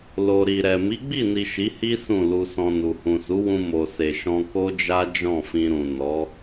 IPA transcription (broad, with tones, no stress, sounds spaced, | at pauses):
l o˨ ɾ i˨ ɾ ɛ˨ m i˨˦ ɡ͡b i˦˨ n i˨ ʃ i˨˦ h i˦ s ũ˦˨ l u˧ s ɔ̃˧ n u˨ h ũ˨ s u˨˦ w ũ˧ m o˨ s e˨ ʃ ɔ̃˧ k o˦ d͡ʒ a˦ d͡ʒ ɔ̃˦˨ f ĩ˧ ɾ ũ˨ n ɔ˨˦